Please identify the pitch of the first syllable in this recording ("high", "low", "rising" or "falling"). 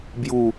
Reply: falling